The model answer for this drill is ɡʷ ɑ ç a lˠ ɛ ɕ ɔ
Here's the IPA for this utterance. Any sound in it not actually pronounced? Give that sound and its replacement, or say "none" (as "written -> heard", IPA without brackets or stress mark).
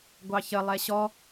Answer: a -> ə